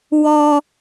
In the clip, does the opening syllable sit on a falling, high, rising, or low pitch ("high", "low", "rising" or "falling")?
high